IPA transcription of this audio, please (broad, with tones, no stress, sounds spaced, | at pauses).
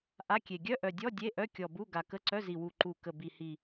ʔ a˧˥˧ kʲ e˨˩ ɡʲ œ˧˥˧ ʔ œ˨˩ dʲ ɔ˧˥˧ dʲ e˧˥˧ ʔ œ˧˥˧ kʲ ɔ˨˩ b u˧˥˧ ɡ a˨˩ k ə˧˥˧ ǀ œ˧˥˧ z i˨˩ w u˨˩ ǃ u˨˩ k ə˨˩ b i˨˩ h i˨˩